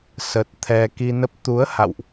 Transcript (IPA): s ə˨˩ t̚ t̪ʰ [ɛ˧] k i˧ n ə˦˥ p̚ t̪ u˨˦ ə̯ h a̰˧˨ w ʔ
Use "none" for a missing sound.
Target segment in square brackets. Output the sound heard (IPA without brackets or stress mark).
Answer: ɛ˧